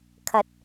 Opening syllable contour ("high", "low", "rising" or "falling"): low